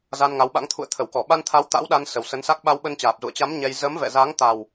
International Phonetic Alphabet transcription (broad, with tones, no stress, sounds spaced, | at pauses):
z a˧ n ŋ a˨˦ w ɓ a̰˧˥ ŋ t̪ʰ ṵ˧˨ ə̯ t̪ʰ ə˧˩ w k ɔ˧˩ ɓ a˧ n t̪ʰ a˨˦ w t̪ a̰˧˥ w ɗ a˧ n s ə˨˩ w s ə˨˦ n s a˦˥ k̚ ɓ a˧ w ɓ ə˧ n t͡ɕ aː˨˩ p̚ z ṵ˧˨ ə̯ t͡ɕ a˨˦ m ɲ ɛ˧ j z əː˨˦ m v ɛ̰˧˨ z a˨˦ ŋ t̪ a˨˩ w